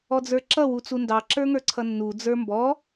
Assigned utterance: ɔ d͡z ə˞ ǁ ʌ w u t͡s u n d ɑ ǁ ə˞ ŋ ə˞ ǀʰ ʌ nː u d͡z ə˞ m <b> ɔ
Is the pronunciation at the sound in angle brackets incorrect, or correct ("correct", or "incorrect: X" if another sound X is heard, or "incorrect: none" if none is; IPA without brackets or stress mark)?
correct